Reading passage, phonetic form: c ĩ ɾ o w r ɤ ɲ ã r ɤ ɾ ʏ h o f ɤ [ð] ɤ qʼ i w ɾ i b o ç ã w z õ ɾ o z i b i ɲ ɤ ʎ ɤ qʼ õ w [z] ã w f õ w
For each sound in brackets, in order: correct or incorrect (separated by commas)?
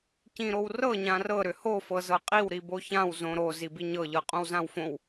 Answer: incorrect, correct